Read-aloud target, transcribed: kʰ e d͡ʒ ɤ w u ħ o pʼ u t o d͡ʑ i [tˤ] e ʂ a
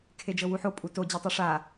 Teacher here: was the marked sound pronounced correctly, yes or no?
yes